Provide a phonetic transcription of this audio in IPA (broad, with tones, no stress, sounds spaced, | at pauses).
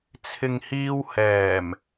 t͡sʰ ɪ˨ ŋ h iː˧ w h ɛː˨˩ m